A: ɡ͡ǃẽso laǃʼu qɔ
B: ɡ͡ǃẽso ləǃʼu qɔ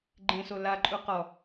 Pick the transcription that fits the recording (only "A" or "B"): A